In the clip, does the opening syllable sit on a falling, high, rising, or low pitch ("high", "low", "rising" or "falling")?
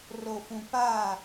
low